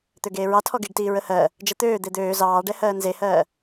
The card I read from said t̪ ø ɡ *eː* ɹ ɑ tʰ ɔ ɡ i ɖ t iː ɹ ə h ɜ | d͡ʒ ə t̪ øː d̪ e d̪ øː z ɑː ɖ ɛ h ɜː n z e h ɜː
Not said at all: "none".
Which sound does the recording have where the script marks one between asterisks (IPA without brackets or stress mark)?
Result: eː